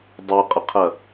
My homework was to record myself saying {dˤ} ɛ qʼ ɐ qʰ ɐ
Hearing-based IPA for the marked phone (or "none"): dˤ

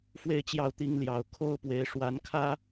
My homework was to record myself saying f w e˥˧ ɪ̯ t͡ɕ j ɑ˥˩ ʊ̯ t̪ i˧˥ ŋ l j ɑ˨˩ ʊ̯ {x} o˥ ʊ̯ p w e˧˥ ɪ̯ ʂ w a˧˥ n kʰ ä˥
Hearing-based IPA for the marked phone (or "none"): kʰ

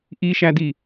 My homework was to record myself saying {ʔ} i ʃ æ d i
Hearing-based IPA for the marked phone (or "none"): ʔ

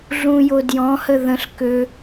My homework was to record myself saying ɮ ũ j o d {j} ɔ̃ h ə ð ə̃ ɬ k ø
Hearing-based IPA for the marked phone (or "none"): j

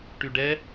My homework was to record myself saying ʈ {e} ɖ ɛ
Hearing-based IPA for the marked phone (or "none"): y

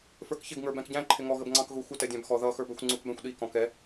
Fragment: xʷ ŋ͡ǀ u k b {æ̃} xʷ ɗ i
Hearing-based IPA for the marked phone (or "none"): æ̃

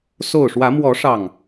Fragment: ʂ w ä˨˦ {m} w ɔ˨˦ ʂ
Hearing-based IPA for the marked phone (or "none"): m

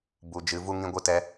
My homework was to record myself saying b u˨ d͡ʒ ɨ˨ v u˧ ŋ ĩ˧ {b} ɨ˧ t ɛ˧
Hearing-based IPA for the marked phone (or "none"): ɡʷ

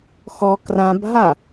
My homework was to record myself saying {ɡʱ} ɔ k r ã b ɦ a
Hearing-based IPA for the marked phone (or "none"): x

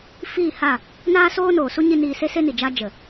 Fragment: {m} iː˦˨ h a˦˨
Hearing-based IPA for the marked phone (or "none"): f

